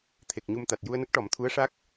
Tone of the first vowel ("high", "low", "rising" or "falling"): low